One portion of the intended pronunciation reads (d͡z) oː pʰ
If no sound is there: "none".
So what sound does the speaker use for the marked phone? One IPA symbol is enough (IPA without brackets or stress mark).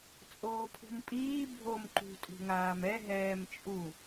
t͡sʼ